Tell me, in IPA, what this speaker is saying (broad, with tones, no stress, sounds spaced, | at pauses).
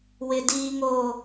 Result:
w ɪ˨ d iː˨ ŋ oː˨